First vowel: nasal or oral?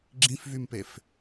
nasal